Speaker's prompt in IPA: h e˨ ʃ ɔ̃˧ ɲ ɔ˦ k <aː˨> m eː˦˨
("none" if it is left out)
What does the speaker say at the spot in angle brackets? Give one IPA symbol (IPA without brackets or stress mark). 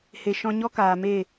aː˨